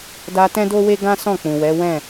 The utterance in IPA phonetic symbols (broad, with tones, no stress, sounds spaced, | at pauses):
d a˧ t ɛ̃˦ d o˦ w e˦ ɡ ã˦ s ɔ̃˦˨ k͡p ũ˨ w ɛ˨˦ w ɛ̃˦˨